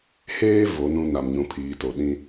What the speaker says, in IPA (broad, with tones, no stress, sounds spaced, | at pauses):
h eː˦ v o˨˦ n ũ˦ n a˨ m ɲ ũ˨ pʰ iː˨ t o˨ ɗ ĩ˦